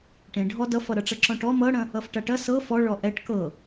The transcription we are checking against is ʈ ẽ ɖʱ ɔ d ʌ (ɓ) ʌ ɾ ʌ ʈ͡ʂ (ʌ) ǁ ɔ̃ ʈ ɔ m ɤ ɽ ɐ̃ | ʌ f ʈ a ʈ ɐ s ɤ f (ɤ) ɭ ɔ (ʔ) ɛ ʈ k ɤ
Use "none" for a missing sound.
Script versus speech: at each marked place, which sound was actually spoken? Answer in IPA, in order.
f, ʌ, ɔ, ʔ

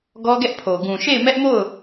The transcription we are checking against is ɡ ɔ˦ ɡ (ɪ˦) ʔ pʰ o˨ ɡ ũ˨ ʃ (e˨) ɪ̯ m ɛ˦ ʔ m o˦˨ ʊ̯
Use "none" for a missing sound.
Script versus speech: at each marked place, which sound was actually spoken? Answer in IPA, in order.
ɛ˦, e˦˨

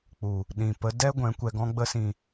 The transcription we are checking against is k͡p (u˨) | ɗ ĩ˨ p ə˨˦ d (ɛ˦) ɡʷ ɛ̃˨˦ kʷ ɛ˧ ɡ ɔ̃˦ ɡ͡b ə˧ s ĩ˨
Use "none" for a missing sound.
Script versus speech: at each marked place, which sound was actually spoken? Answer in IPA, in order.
u˨, ɛ˦

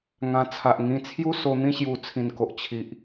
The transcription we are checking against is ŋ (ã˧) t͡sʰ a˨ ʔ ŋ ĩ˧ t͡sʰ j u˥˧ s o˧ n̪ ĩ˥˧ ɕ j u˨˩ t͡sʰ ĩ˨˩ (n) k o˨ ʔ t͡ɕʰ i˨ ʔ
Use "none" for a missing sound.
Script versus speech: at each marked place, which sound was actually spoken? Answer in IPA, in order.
ã˧, n

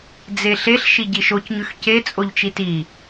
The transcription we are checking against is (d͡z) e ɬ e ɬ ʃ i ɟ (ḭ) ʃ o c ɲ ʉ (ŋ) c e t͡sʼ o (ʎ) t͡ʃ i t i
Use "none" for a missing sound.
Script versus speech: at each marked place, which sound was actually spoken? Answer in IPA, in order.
d͡z, i, x, ʎ

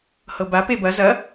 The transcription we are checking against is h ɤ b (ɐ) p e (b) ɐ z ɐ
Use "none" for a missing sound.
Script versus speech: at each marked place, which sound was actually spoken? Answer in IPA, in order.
a, b

